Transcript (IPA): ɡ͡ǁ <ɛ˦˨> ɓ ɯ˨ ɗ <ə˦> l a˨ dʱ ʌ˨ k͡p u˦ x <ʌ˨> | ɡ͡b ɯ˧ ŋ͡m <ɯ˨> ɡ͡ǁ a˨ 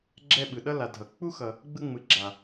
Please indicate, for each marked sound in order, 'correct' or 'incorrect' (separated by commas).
correct, incorrect, correct, correct